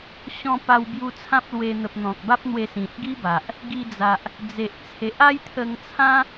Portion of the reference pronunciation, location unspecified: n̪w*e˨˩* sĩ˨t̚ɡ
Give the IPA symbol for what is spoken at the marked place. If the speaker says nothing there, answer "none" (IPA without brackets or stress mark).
e˧